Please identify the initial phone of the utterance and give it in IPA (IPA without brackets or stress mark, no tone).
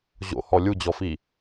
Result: ʑ